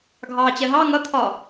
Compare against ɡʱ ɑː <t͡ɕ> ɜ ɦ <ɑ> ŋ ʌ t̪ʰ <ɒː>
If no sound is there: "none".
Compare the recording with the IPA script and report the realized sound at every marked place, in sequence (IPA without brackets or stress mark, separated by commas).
t͡ɕ, ɑ, ɒː